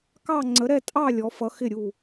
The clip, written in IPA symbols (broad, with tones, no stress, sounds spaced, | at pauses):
k ɑ˥˧ ŋ͡ǀ ə˨˦ ɾ ɛ˥˧ tʼ ɑ˥˧ lʲ ɔ˨˦ f ʌ˨˦ x ɪ˥˩ ɾʲ u˥˩